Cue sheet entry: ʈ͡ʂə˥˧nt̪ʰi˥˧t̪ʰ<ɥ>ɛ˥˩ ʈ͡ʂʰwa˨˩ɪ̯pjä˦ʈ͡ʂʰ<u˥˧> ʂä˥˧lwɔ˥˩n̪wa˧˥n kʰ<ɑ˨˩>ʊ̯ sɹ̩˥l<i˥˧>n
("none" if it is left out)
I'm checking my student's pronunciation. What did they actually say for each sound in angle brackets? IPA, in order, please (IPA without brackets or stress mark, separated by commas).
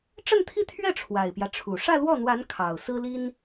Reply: ɥ, u˨˩, ɑ˨˩, i˥